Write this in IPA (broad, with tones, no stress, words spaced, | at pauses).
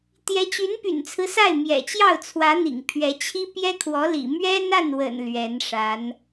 t̪jɛ˧˥t͡ɕy˧˥npy̰˨˩nt͡sʰɹ̩˦ sa˥˩ɪ̯ mjɛ̰˨˩t͡ɕjɑ˥˩ʊ̯t͡sʰwä˧˥ n̪ḭ˨˩ŋpʰɥɛ˧˥t͡ɕʰi˥ pjɛ˥kʰwɔ˧˥lḭ˨˩ mɥɛ˥na˥˩nwə̰˨˩n lɥɛ˧˥nʂa˧˥n